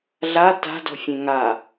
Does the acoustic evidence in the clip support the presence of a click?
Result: no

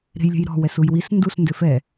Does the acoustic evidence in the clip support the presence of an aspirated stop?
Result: no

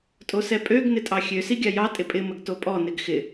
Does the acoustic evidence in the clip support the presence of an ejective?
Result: yes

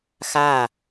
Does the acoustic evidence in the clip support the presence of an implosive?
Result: no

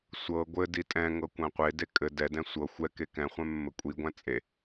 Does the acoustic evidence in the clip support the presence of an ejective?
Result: yes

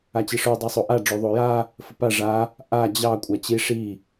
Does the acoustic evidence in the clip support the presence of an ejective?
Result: yes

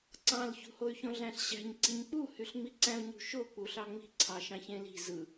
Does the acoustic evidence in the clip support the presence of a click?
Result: yes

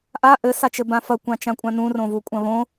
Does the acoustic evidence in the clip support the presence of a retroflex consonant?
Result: no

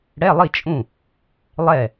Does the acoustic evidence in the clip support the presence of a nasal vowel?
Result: yes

